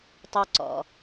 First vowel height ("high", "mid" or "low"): mid